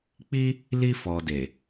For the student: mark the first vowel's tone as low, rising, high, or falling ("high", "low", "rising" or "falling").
high